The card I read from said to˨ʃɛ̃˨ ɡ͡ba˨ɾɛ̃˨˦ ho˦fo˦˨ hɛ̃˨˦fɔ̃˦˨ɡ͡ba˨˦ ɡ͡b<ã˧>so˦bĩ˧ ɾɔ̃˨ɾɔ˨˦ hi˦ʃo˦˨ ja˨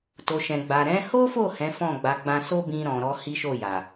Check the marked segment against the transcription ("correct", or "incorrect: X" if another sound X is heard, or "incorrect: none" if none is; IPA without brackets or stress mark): correct